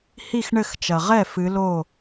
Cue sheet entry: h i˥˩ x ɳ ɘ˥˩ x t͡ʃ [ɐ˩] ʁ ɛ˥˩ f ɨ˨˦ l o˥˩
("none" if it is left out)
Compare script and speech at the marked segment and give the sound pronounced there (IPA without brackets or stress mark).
ɐ˩